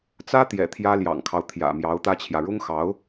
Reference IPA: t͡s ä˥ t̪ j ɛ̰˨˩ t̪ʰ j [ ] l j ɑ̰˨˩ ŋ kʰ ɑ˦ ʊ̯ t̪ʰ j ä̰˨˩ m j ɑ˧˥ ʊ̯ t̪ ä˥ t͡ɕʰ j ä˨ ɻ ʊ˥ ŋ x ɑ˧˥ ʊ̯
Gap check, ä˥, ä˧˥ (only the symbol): ä˥